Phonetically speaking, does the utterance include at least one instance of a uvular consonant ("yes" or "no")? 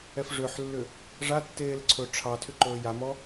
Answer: no